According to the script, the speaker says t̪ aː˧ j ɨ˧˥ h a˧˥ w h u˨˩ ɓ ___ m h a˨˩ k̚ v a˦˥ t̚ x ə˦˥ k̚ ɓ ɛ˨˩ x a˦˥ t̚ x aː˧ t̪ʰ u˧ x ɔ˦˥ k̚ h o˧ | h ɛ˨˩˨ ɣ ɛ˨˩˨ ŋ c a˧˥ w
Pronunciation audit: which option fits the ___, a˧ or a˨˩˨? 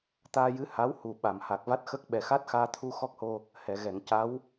a˨˩˨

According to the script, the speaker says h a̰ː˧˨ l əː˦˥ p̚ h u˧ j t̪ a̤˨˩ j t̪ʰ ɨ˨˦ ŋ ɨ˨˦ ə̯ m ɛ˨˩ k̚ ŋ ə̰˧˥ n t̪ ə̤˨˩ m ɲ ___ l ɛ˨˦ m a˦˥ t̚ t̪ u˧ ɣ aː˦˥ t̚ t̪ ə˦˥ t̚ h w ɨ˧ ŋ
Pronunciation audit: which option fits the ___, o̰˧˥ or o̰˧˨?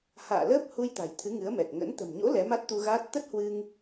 o̰˧˥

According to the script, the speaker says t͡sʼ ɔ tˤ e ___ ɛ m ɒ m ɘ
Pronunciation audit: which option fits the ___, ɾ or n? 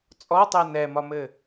n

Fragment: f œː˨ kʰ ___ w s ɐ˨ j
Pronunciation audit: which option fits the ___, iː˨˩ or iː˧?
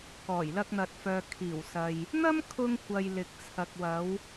iː˨˩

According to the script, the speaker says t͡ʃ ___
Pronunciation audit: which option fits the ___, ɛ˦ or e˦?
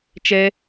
ɛ˦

